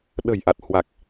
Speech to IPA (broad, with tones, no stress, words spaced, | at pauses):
ɗə̤˨˩jʔa˨˩t̚hwa˨˩k̚